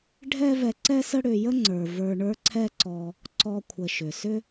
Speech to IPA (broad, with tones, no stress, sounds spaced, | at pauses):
ɖʱ ɛ˦ v ɛ˧ ǀ ɛ˦ s ə˦ ɽ ʏ˧ j ə˦ ŋ͡ǀ ə˞˨ v ə˞˧ ɳ ə˞˦ ǀʰ ɛ˦ ǀ ɔ˧ | ǀ ɔ˧ kʷʰ ə˨ ʃ ʏ˨ s ʏ˦